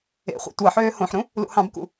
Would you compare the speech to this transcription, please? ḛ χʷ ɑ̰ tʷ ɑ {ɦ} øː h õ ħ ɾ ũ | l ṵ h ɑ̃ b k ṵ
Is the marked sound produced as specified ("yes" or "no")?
no